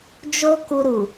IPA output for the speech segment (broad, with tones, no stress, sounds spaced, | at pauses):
d͡ʒ o˦ k u˧ ɾ u˨